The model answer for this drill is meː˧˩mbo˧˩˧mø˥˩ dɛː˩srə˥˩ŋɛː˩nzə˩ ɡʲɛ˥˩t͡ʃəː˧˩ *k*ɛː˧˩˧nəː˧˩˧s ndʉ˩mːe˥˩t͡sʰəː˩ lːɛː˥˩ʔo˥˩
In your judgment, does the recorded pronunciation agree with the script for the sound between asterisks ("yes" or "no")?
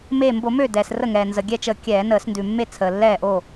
no